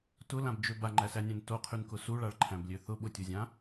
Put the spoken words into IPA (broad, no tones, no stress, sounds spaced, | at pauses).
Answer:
t ʊ l ã b d͡ʒ ø b a ŋ͡ǃ æ s æ nʲ æ̃ n t o qʰ y n k ʊ s u ɭ a ɭ ǃʰ æ̃ b lʲ ø θ ʊ ɓ ʊ tʲ u zʲ ã